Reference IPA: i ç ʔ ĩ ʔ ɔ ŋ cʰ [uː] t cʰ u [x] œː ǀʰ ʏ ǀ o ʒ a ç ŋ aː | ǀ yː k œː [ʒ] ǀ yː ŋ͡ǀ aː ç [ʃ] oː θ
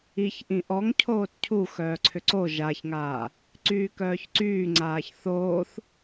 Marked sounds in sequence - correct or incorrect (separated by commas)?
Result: incorrect, correct, incorrect, incorrect